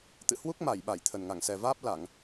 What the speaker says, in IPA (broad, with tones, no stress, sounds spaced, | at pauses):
t̪ ɨ̰˧˨ h w u˦˥ k̚ m a˧˩ j ɓ a˧˩ j t̪ʰ ə˨˩ n ŋ a˧˩ ŋ s ɛ˨˩ v aː˦˥ p̚ l a˧˩˨ ŋ